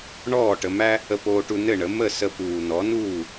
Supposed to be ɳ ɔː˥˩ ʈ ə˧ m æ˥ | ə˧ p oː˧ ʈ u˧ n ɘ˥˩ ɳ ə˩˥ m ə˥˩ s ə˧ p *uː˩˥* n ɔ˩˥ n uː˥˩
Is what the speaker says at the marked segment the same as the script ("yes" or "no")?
no